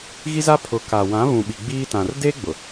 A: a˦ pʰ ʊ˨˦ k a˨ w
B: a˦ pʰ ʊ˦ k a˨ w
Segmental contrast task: A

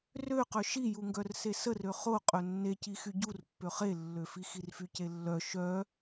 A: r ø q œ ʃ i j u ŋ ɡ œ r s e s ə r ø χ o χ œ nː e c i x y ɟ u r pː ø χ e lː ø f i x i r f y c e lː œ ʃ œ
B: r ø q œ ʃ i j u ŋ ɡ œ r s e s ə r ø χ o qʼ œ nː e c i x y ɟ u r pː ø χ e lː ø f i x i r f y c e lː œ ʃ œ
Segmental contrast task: B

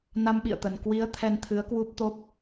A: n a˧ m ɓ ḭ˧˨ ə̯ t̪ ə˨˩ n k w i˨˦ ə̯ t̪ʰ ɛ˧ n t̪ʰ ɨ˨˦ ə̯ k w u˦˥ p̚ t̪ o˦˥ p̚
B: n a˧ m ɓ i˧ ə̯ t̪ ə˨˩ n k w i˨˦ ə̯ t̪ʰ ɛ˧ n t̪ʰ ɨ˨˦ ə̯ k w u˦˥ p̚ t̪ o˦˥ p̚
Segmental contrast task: A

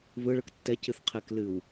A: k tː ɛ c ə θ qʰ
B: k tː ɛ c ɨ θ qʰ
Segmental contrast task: B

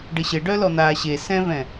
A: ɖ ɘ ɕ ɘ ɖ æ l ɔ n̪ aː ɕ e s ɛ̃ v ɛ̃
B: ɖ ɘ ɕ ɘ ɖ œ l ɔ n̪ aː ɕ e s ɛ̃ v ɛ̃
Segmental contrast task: B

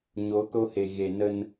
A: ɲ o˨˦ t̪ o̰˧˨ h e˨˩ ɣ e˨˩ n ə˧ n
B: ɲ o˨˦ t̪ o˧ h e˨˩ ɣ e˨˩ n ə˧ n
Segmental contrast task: B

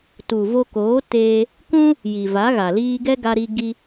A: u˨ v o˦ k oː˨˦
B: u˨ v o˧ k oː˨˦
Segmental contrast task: B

